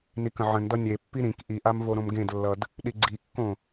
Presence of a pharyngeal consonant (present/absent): present